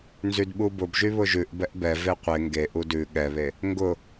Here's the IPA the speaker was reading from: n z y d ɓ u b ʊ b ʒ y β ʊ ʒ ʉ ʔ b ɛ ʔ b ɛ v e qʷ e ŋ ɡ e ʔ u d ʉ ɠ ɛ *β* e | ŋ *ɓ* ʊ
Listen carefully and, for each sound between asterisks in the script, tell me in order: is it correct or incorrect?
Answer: correct, incorrect

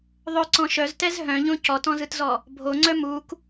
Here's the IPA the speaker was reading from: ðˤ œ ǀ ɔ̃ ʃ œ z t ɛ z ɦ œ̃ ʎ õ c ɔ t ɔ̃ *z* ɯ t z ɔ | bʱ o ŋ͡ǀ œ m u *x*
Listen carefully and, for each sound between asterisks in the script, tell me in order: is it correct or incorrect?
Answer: correct, incorrect

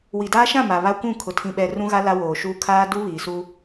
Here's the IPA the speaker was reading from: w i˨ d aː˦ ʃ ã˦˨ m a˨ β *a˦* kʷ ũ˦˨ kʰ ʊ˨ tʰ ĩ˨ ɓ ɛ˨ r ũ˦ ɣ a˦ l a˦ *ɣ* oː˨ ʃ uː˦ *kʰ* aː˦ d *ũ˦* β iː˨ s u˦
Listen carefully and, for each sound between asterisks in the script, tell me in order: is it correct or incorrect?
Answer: correct, incorrect, correct, incorrect

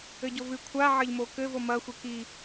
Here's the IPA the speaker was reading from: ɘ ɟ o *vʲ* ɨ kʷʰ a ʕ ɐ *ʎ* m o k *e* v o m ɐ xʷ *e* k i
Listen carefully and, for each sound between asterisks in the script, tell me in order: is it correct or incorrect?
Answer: incorrect, correct, incorrect, correct

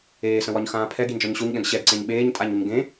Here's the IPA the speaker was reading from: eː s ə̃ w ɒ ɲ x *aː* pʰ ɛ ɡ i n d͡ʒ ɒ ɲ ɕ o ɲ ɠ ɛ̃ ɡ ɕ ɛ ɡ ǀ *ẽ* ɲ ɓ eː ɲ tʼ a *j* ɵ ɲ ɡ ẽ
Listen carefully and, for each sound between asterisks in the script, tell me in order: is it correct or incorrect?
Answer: incorrect, correct, incorrect

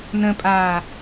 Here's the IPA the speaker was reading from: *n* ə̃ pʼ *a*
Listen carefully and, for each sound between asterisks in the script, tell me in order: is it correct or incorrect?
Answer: correct, incorrect

